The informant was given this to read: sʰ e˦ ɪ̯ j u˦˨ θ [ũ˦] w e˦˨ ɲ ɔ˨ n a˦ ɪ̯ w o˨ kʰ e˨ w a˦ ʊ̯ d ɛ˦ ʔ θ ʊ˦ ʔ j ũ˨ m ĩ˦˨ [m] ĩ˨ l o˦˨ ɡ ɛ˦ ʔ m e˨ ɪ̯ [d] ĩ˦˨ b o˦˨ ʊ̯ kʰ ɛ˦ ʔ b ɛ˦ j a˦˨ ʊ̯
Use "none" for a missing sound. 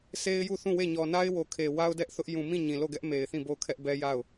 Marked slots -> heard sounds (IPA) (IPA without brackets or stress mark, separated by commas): ũ˦˨, ɲ, θ